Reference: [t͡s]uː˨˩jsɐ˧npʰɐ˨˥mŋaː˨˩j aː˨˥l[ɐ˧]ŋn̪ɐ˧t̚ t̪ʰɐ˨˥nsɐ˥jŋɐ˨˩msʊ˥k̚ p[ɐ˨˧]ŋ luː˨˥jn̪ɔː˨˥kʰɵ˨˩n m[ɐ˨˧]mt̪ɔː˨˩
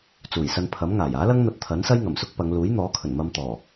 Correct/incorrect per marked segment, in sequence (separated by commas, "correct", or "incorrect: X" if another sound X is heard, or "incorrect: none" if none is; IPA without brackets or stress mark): correct, incorrect: ɐ˥, correct, incorrect: ɐ˧